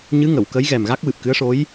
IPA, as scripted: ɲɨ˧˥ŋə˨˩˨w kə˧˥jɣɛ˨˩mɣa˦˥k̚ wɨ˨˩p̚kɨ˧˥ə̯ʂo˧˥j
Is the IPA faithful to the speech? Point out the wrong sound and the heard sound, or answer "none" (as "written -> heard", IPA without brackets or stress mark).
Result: none